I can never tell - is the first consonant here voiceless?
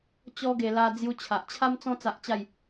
yes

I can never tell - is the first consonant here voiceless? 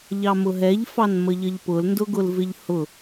no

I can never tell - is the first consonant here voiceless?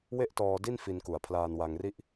no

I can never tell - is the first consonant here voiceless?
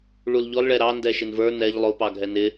no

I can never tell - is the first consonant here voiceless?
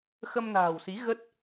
yes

